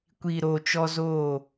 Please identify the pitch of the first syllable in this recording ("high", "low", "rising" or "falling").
low